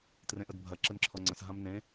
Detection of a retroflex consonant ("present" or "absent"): absent